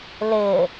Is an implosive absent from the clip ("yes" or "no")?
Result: yes